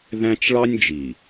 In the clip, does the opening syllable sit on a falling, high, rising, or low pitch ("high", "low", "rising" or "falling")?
high